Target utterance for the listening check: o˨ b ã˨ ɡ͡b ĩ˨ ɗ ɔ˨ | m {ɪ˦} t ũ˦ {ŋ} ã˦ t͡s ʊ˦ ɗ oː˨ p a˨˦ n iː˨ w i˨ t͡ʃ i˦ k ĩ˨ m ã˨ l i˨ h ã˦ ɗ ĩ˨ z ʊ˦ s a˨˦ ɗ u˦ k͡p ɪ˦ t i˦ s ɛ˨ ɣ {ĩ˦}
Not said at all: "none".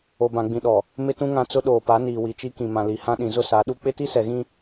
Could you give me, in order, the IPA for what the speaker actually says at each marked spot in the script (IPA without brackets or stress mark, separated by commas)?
ɪ˦, ŋ, ĩ˦